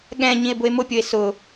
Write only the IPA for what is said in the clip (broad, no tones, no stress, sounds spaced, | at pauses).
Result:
ɠ ɛ̃ ɲ ĩ e̯ b ʊ e̯ m ʊ pʲ o e̯ s ʊ